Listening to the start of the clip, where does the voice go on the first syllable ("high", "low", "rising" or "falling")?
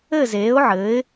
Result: falling